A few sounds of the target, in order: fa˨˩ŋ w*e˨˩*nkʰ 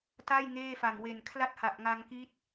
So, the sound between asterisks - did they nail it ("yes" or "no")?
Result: yes